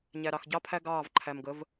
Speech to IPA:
ɲ æ˨ ɾ ɑ˨ x ɟ ɑ˦ pʰ æ˦ ɡ ɑː˦˨ v ǃʰ æ˨ m ɡ ə˨˦ v

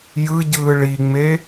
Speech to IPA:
j ɯ ɟ ɯː ɭ i ŋ͡m e

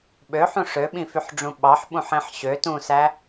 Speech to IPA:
ɓ ø ħ ũ ʂ ø ɓ ĩ f y ħ ɖ͡ʐ ũ ɓ ɑ ħ ɓ ũ ħ ẽ ħ ɕ ø t ũ s æ

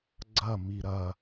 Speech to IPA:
ɡ͡ǀ ɐ m i ɾ ɐ

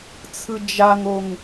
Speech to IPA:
t͡sʰ ɯ d͡ʒ a ŋ o ŋ

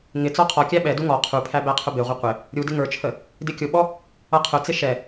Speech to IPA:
ŋ ɪ t͡s ɔ qʰ ɔ kʲ æ ɓ ɛ d u ŋ ɔ qʰ u pʰ æ b æ qʰ ʊ b ɪ ʁʷ ɪ qʷ ɪ | ɾʲ u d ɪ ŋ ə˞ t͡ʃʰ ə | d ɪ kʲ ʊ ɓ ɔ | ʌ qʰ ʊ t͡s ɪ ʃ ɛ

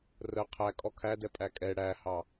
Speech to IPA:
r ə qʰ æ kʼ ɔ kʰ æ d ɛ pʼ æ kʼ ɛ ɽ æ h ɑ

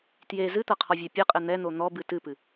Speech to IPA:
t j e z ɨ t̪ ɐ qʰ ɔ vʲ ɛ pʲ ɘ qʼ ɘ n̪ ɛ n̪ o n̪ ɔ b ɨ t ɨ p ɨ

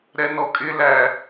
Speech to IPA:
ɾ ɛ n ɔ kʼ ɪ l æ

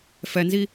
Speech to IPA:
f ɛ n z i

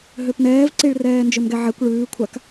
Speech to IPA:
ɦ ø p n ɛː v ǀ i ɭ r ɛː n d͡ʒ ø m ɡ ɛ ʕ ɛ kʷ ɭ ʉː kʷʰ a k

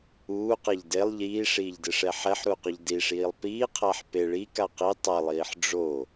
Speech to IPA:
uː q ɛ ʎ d e lˠ ʎ iː ʂ iː ʎ d ɪː ʂ ɛ ħ ɛ ħ ɾ u q ʊ ʎ d i ʂ iː lˠ p iː qʰ a ħ p e ɭ i k a q i tˤ a lˠ iː ħ ɖ͡ʐ o

